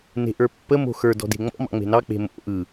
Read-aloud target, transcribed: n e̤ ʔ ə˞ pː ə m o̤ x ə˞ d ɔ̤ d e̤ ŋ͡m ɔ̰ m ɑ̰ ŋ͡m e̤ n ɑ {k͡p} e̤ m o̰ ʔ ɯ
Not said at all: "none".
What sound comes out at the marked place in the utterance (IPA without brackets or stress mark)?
k͡p